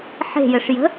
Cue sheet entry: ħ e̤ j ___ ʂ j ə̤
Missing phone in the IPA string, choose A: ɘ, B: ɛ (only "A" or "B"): A